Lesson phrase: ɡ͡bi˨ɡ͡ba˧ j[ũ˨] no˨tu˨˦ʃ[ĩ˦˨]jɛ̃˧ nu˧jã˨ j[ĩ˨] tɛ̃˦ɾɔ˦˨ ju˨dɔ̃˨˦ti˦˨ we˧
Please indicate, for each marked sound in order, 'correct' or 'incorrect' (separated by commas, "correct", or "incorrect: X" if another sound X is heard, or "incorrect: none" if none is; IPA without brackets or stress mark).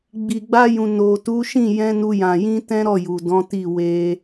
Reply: correct, correct, incorrect: ĩ˧